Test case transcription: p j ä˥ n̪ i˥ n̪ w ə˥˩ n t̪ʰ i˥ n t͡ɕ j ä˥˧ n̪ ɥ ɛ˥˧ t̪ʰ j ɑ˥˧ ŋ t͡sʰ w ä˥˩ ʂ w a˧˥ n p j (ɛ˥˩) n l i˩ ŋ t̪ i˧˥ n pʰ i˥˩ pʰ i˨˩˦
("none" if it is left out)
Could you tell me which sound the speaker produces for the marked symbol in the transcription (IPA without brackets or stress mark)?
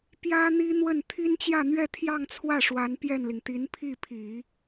ɛ˥˩